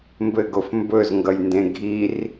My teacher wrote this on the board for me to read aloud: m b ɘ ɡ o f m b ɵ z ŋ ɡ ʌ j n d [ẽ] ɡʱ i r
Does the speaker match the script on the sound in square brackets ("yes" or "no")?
yes